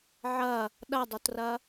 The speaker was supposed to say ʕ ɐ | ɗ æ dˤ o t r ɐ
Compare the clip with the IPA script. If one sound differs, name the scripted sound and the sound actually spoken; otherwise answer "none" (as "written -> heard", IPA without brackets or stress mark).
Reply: æ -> ɐ